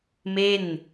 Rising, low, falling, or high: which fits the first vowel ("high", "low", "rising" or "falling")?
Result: falling